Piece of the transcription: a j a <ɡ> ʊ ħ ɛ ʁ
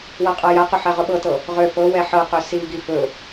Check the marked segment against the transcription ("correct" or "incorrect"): incorrect